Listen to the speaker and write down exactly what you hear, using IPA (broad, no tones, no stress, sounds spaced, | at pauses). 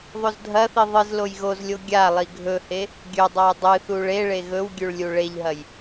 ðˤ o z dʱ ɐ θ i ðˤ ɨ z l o j ɣ o z lʲ o ɡʲ a lˠ i ɡʱ ɵ h e | ɡʲ ɵ dˤ a j dˤ ɨ θ u ɭ e ɭ e ɣ ɵ w ɡʲ ʉ ɭ lʲ u ɭ e ʎ ɦ ɐ j